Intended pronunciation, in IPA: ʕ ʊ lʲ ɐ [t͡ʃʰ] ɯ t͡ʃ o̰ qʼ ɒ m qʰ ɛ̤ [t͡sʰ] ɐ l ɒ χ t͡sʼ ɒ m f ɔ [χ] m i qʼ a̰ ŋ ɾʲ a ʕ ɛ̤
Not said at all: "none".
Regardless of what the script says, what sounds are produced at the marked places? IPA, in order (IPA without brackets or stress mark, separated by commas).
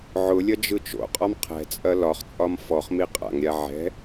d͡ʒ, t͡sʼ, χ